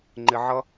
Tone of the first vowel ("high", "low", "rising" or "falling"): low